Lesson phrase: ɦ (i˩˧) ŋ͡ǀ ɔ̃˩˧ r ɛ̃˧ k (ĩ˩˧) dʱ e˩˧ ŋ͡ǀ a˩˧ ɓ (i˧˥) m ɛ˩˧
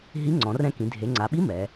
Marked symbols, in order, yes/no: no, yes, yes

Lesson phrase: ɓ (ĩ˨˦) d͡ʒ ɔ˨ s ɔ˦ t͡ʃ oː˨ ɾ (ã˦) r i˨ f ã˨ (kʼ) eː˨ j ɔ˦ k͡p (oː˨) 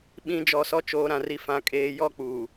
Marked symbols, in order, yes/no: yes, no, yes, no

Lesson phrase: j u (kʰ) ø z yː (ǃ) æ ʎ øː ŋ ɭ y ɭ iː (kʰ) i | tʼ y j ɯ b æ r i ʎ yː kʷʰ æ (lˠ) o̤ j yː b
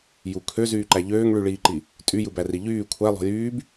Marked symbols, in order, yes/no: yes, yes, no, yes

